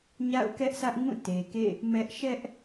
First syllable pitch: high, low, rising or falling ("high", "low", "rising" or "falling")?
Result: falling